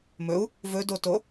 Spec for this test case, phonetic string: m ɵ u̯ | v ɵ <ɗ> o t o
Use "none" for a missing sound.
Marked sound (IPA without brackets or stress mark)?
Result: d